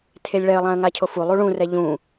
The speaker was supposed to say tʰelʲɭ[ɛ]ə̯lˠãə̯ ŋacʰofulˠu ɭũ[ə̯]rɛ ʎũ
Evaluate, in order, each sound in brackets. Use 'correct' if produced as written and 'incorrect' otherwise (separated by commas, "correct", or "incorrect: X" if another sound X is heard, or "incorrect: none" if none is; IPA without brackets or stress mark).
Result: correct, incorrect: none